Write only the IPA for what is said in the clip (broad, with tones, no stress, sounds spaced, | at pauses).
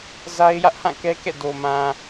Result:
z a˦ ɪ̯ j ä˦ ʔ h ã˦˨ k ɛ˦ k ɛ̰˦˨ d o˨ m ã˨